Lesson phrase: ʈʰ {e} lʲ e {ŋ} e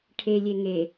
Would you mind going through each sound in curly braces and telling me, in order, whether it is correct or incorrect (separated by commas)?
correct, correct